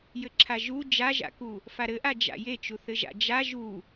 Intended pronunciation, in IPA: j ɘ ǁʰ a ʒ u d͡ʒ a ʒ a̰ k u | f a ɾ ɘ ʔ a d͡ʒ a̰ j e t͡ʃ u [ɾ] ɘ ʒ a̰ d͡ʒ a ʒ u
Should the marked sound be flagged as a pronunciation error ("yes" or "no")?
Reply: yes